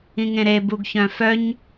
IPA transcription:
ĩŋẽɾe buɡçœ̃fœɲ

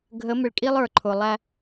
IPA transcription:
ɡʱə˨˦mɪ˨ɭkʼi˦lˠ ə˞˨ǃʰʊ˨ lˠæ˦

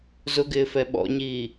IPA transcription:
zʊɡɪːfɛ ɓɔ̰ɲiː

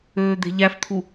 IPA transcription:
øːd̪e̤ʎæft̪ʰu

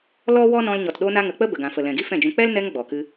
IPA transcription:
lɔ˦wɔ˦nɔ̃˧l ɲɔ˨tɗo˧na˧ŋə˨ k͡pə˦bə˨ɡã˨fə˨ lɛ̃˨ɡi˦ fɛ̃˦˨d͡ʒũ˧ k͡pɛ˦lnɛ˧ŋ ɡ͡bɔ˨ kɨ˧

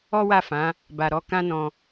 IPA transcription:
ɔ˦wa˦˨fã˨˦ | ba˧ɾɔ˦ kã˦nɔ̃˧

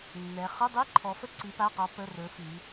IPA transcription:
nːɛ˩˧ χɵ˧˥˧ dˤi˧˥˧ǃʰɔ˩˧fə˧˥˧ ǀi˩˧pa˩˧˩qɔ˩˧ pə˩˧˩rɵ˩˧ fi˩˧

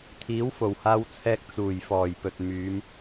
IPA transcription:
t̪ʰiː˨˥wfo˨˩whaː˧wt͡sʰɛː˧k̚ t͡suː˨˩jfɔː˨˩j pɵ˨t̚ myː˨˧m

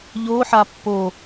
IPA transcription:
ʎo ħapːo

